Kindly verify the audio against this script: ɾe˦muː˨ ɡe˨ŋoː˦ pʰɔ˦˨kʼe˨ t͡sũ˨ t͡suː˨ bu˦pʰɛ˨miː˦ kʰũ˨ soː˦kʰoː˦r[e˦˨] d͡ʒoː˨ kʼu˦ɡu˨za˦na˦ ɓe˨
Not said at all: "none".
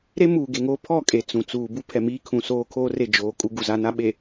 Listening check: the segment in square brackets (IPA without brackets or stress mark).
e˦˨